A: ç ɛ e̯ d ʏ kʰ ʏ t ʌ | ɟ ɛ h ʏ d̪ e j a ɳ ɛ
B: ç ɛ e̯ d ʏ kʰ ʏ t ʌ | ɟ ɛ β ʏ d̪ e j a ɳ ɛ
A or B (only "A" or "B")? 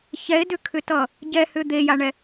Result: A